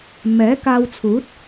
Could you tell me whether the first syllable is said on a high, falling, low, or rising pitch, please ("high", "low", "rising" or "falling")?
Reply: rising